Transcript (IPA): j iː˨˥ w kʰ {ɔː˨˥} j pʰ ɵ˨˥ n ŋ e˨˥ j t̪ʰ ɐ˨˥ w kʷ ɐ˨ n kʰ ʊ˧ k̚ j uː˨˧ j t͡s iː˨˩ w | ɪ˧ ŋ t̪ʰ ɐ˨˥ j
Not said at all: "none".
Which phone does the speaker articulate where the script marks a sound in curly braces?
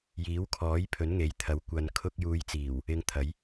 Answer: ɔː˨˥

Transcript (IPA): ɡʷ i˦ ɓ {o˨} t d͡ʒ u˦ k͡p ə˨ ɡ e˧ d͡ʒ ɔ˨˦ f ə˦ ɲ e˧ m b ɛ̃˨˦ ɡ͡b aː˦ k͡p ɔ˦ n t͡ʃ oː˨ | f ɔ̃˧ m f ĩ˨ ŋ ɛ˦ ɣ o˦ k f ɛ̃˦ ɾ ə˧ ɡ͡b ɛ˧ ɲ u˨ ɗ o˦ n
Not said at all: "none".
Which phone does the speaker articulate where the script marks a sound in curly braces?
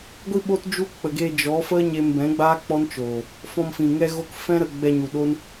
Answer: o˦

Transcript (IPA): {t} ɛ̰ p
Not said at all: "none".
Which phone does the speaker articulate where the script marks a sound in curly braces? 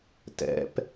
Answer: t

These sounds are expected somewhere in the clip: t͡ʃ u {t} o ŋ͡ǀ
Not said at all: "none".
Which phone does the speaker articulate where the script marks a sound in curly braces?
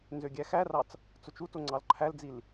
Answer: t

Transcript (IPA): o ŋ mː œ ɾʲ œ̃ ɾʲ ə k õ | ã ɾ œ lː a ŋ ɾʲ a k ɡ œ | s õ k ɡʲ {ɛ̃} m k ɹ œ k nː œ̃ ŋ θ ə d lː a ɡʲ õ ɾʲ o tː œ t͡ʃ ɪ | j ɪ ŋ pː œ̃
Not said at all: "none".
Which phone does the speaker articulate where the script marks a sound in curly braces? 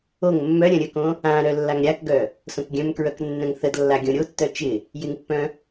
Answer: œ̃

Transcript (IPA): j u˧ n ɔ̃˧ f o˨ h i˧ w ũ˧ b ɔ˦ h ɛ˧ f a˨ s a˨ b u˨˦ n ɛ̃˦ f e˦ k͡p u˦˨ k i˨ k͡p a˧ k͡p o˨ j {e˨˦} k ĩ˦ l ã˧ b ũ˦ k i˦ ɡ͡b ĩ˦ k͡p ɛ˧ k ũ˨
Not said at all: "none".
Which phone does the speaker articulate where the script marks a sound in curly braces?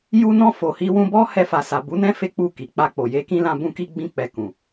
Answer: e˨˦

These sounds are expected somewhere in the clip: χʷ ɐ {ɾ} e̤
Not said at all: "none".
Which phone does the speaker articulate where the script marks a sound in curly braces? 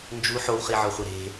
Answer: ɾ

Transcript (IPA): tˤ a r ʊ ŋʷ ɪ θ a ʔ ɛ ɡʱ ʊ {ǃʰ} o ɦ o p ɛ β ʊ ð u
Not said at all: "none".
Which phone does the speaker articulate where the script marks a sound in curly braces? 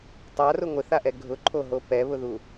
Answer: ǃʰ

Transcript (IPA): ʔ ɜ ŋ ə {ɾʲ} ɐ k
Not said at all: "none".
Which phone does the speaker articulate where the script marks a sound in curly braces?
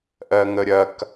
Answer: ɾʲ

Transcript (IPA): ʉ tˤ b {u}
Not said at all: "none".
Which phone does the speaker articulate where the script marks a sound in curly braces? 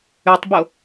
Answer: o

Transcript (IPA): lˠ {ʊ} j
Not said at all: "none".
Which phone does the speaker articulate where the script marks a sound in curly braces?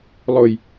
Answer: ʊ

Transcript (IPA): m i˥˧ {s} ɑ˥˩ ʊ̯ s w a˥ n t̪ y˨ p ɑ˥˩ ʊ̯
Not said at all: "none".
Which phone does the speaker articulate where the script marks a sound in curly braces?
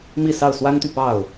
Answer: s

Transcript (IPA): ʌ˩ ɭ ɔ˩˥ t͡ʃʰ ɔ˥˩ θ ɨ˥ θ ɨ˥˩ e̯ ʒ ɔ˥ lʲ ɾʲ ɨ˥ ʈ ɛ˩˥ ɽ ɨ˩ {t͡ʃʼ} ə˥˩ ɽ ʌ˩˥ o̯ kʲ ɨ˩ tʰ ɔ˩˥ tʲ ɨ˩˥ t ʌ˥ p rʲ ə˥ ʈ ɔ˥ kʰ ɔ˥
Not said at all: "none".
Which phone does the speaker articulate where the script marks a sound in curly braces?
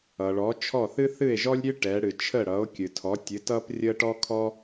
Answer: t͡ʃʰ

